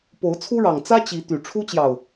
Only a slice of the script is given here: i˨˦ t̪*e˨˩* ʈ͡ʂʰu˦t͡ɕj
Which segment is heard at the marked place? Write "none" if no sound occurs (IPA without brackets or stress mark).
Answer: y˨˩